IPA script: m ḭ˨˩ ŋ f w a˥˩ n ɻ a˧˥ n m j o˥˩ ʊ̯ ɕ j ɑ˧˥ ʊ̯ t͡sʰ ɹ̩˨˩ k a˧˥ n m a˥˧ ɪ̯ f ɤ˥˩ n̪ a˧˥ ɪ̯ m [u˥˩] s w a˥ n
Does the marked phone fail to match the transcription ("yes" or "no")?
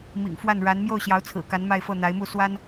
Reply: no